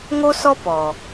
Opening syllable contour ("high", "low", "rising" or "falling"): high